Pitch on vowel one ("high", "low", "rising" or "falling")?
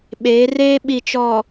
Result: rising